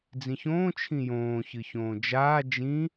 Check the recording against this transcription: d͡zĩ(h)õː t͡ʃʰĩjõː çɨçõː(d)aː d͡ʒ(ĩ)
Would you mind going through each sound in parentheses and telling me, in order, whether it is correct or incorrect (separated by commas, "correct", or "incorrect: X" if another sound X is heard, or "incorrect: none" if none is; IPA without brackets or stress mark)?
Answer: incorrect: ç, incorrect: d͡ʒ, correct